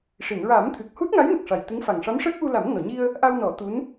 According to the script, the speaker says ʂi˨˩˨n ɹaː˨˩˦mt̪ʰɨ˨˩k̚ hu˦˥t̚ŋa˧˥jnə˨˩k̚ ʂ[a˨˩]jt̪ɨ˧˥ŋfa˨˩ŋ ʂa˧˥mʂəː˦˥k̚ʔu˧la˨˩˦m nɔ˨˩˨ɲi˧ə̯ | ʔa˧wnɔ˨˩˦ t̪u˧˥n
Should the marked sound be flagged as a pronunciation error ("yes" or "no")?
no